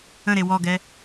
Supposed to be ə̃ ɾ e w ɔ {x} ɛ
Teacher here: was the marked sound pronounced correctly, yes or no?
no